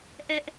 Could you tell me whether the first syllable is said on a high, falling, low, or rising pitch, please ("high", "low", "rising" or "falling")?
high